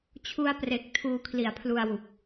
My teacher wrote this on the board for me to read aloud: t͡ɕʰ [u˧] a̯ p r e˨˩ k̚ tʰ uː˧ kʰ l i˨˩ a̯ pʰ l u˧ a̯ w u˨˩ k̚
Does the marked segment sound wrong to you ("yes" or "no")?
no